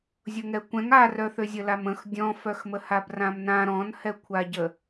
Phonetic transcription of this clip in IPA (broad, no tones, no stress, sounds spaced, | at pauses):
zʲ o ŋ ɛ kʷ ɛ̃ ŋ a r œ θ ø zʲ ə l a m ə̃ x dʲ ɔ̃ f œ x m ə h a b r ã m n ã ɾ ɔ̃ n h ɛ kʷʰ a ɟ ə